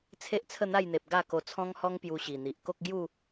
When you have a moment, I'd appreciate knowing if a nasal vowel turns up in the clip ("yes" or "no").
yes